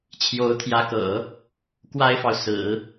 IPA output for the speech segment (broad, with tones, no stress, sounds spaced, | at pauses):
t͡ɕʰ j o˧˥ ʊ̯ t̪ʰ j ä˧˥ k ɤ̰˨˩˦ | k w a˥ ɪ̯ f ɑ˨ ʊ̯ s ɹ̩˨˩˦